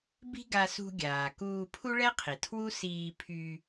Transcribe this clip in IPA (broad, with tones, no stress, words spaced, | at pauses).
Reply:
bi̤˥ɡa˧sṳ˧ ɡʲaː˩kuː˧ pʰu˥ɭɛ˥qʰi˩ tʰwu˥siː˧pʰy˧